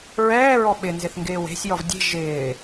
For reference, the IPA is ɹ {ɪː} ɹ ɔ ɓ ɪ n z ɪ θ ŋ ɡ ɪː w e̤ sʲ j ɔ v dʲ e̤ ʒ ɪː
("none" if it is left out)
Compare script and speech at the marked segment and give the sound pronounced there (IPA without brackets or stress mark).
ɛː